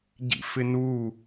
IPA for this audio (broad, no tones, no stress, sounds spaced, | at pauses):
ɟ ḭ f ɪ n u